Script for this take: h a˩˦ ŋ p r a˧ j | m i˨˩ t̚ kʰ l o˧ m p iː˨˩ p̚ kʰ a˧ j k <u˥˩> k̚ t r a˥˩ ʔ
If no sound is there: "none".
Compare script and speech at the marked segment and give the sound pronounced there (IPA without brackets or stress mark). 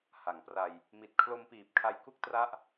u˥˩